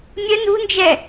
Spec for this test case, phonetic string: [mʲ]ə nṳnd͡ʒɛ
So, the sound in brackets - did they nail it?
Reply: yes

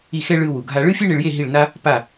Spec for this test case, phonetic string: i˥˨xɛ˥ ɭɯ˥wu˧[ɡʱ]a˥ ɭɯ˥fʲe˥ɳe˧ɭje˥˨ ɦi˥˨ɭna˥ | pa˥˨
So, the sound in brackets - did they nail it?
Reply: yes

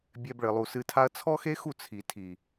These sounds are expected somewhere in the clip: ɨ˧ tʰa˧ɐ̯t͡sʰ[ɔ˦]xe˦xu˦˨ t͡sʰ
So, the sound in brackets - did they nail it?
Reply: yes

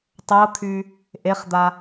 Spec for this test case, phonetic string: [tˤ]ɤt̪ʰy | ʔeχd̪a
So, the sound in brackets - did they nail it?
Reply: yes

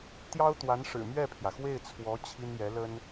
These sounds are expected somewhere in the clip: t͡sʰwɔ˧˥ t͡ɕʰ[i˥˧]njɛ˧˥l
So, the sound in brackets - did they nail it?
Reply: no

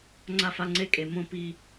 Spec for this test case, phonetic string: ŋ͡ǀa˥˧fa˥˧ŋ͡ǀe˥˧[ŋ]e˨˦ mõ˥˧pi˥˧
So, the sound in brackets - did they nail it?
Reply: no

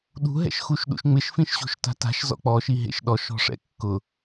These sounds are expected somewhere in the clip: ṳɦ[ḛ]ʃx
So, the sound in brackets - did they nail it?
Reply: no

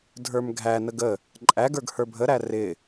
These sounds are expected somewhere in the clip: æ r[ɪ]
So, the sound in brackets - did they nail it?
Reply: yes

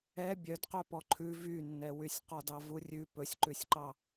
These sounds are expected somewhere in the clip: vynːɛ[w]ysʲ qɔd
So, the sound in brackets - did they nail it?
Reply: yes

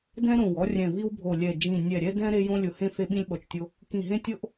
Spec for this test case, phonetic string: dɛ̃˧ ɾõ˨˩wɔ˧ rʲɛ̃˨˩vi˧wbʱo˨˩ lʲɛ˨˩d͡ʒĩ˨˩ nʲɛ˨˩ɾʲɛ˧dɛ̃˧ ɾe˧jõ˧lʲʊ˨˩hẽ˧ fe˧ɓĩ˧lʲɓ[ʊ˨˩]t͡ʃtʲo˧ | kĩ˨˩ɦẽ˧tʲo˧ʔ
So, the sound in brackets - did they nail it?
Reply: no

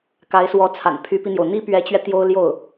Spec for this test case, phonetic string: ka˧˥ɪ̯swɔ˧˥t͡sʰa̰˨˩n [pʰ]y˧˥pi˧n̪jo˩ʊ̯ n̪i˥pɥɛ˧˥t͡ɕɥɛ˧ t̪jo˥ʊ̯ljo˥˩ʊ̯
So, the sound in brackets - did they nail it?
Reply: yes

